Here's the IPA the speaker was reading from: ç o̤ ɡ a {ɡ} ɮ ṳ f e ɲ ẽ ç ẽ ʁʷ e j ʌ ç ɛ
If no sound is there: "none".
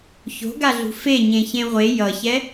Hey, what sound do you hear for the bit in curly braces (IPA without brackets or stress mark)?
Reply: none